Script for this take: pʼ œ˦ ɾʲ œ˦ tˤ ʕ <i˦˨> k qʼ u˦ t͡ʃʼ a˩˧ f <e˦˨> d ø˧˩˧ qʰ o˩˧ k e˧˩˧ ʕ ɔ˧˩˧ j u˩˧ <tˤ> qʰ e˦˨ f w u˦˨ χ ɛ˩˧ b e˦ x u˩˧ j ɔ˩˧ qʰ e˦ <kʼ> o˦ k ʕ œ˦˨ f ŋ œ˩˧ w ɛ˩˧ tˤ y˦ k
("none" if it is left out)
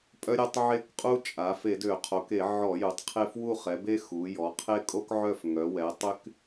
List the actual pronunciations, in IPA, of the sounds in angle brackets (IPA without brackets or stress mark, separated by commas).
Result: e˦˨, e˧˩˧, tˤ, kʼ